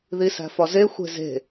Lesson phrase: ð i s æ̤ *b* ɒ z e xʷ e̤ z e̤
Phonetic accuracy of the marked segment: incorrect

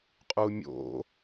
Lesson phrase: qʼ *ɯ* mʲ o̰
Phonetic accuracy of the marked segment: incorrect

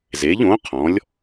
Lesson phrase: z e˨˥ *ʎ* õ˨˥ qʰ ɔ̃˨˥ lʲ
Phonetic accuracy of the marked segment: correct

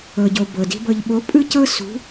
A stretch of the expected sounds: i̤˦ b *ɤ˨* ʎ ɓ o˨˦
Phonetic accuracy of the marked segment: correct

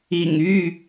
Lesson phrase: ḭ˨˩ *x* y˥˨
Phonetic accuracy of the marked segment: incorrect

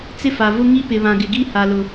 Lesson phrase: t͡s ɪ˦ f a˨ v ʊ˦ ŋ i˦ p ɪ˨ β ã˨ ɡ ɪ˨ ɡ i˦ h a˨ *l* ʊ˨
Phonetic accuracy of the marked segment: correct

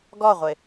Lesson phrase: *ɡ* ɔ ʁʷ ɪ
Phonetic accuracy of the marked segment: correct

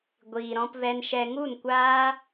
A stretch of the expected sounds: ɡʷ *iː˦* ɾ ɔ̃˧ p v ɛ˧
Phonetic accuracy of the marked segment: incorrect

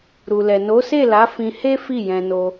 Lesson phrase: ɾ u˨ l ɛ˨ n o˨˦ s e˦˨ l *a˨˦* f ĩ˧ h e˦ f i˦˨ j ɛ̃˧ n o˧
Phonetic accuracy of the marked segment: correct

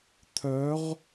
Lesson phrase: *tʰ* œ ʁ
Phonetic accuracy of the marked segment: correct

